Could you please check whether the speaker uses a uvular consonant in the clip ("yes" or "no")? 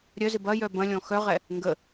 yes